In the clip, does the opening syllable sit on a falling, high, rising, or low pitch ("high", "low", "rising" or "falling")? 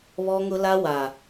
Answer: high